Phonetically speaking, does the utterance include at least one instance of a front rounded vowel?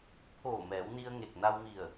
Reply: no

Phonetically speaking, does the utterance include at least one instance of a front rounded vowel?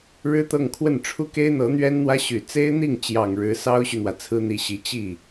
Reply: yes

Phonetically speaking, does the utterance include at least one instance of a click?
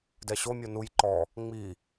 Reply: yes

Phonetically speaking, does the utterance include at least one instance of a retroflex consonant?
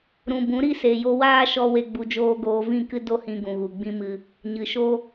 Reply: no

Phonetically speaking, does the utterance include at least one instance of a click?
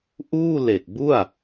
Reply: no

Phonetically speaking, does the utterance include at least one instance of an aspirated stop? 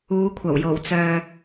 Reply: yes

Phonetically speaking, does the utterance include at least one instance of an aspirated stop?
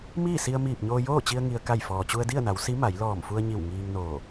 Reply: no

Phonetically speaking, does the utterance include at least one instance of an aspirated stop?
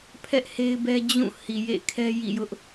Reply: yes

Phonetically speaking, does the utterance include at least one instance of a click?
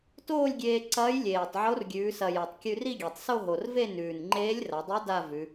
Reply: yes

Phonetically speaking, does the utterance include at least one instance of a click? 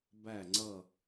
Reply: yes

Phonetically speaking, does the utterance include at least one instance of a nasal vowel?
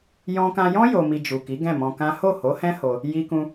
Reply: yes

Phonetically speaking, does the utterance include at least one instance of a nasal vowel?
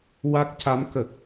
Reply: no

